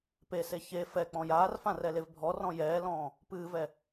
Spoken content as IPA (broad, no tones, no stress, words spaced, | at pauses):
pese çe fɛ k͡pɔ̃jaːrfã rɛlevbʱɔrɔ̃ jɛːlɔ̃ː | pɨːvɛ